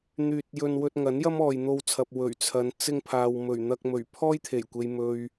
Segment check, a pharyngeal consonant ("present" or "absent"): absent